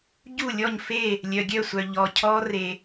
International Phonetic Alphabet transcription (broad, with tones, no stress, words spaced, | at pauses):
ɟu˥˨lʲɔ˥˨ɲfe˥˨ | lʲœ˨ɡʲœ˥˨sʷœ˨ ʎɔ˨cʰɔ˦˥re˨